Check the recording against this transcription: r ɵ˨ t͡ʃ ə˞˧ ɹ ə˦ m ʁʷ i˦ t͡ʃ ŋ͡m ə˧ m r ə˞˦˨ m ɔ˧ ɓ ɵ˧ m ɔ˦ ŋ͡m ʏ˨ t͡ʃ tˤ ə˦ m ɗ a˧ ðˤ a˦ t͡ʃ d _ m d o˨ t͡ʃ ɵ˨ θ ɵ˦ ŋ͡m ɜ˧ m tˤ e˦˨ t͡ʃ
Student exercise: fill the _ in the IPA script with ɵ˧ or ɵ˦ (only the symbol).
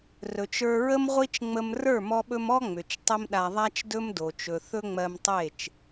ɵ˦